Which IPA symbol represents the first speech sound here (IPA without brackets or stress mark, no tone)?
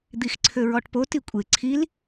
d̪